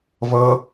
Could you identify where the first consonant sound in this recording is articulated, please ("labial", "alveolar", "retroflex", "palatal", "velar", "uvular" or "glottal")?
labial